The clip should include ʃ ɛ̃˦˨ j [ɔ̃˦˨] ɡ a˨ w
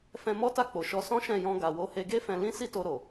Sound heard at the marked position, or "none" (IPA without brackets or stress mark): ɔ̃˧